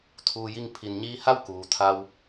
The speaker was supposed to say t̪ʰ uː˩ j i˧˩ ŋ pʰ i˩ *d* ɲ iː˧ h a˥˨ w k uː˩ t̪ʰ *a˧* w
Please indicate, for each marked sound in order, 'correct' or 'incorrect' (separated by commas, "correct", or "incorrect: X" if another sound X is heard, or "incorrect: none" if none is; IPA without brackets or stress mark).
incorrect: n, correct